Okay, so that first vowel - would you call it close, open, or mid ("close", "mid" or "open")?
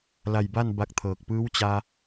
open